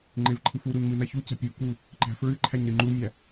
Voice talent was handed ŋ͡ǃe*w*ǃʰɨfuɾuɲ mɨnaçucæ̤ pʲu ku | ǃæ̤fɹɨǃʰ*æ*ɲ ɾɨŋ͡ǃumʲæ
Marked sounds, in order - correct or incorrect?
incorrect: v, correct

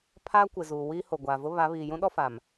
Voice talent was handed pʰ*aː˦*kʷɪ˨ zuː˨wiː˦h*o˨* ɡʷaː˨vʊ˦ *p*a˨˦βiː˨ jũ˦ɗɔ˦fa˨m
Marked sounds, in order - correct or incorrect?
correct, correct, incorrect: β

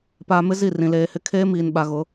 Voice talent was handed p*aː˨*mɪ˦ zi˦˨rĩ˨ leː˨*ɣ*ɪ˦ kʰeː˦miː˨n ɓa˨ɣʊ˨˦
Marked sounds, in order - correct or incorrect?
correct, incorrect: h

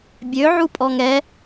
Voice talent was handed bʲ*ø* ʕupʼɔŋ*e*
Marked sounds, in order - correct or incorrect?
correct, incorrect: ɛ

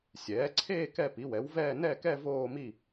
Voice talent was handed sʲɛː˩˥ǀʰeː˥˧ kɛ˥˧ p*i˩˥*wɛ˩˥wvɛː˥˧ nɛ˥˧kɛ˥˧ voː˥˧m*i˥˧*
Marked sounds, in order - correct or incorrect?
correct, correct

